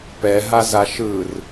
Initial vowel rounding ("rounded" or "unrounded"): unrounded